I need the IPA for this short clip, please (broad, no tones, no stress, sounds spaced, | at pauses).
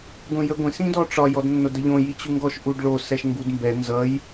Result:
ɡʷ ĩ j ə ɡʷ ĩ s ĩ d ɔ ʈ͡ʂ ɒ j ɔ d nː o d ə ʎ õ j i t͡ɕ u ŋ ɡ ɔ ʃ ʔ u ɖ ɭ o s ɛ ʃ ŋ ɡ u d m b ɛ n z ʌ j